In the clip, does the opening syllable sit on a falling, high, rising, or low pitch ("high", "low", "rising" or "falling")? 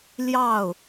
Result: falling